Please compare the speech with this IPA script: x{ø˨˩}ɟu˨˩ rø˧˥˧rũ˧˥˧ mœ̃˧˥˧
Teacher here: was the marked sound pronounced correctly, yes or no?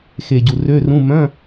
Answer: no